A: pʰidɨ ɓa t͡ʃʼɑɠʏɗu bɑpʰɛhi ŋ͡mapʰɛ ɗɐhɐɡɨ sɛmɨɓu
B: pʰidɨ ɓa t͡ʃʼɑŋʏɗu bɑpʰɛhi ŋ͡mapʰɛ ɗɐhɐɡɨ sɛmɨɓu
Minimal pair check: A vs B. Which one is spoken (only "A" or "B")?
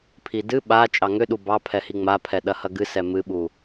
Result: B